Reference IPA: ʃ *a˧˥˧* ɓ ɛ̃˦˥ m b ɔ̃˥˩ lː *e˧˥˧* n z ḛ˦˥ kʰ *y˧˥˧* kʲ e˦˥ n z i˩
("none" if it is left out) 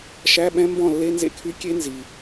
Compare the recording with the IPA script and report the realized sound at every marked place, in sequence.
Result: æ˧˥˧, e˧˥˧, y˧˥˧

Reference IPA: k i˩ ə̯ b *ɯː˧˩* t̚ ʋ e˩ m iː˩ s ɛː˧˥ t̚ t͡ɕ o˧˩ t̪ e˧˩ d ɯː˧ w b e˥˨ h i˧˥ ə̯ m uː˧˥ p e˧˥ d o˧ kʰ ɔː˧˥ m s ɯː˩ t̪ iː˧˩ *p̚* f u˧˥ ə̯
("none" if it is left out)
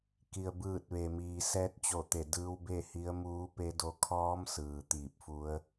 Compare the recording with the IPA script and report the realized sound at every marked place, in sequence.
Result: ɯː˧˩, p̚

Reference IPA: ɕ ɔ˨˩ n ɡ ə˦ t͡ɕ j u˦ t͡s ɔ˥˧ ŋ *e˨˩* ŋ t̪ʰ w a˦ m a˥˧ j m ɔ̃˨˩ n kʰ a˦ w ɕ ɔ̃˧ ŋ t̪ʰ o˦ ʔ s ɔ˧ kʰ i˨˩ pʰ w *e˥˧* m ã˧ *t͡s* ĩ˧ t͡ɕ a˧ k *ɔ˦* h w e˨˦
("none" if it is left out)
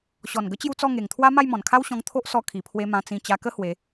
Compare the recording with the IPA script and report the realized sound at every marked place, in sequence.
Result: e˨˩, e˧, t͡s, ə˦

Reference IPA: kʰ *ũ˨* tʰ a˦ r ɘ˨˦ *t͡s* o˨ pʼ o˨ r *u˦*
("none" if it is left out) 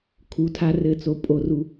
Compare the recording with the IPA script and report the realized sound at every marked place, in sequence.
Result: u˨, t͡s, u˨

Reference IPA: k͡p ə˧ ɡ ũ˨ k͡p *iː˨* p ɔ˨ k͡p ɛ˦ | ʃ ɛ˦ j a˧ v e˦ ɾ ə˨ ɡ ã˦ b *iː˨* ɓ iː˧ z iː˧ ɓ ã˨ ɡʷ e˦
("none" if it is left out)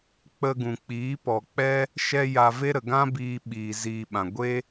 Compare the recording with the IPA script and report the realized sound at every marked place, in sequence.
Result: iː˨˦, iː˧

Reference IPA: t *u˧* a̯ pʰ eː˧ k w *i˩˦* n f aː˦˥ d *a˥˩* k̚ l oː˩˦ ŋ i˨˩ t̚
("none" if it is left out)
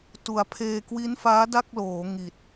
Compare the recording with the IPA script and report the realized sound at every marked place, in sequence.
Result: u˨˩, i˦˥, a˥˩

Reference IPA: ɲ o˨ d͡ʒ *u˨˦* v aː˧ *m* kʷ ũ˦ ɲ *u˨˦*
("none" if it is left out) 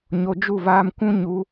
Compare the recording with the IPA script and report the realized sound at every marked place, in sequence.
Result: u˦˨, m, u˨˦

